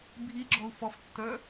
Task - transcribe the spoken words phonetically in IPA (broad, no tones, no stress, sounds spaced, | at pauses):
bʱ i ɡ͡ǁ ɔ u̯ f ɔ f tː ə˞